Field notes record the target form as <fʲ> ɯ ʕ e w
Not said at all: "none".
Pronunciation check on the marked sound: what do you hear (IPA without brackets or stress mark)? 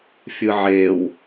fʲ